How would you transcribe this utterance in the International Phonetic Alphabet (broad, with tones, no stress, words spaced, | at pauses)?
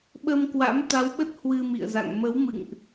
ɓə˧mkwa̰˧˥m t̪a˨˦wɓə˦˥t̚ hwɨ˧mḭ˧˨ə̯za̰˧˨ŋ mə˨˦wmɨ̰˧˨ŋʔ